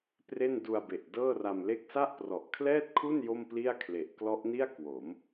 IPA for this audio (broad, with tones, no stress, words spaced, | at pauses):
pre˥˩n du˧a̯be˨˩ʔ dɤː˥˩ra˧mle˥˩k̚ sa˥˩ʔprɔ˨˩ʔkʰlɛː˥˩t̚kʰu˥˩n jo˥˩mpli˥˩a̯kʰle˨˩ʔ klɔ˦˥ʔni˥˩a̯ kwo˩˦m